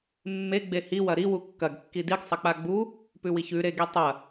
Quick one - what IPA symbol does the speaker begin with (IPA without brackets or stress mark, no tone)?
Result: mː